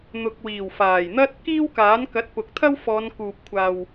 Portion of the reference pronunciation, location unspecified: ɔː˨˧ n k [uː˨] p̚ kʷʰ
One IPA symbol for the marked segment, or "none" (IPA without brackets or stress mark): uː˨